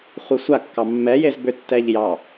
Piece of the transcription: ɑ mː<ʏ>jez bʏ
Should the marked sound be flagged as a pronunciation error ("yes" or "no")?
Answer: yes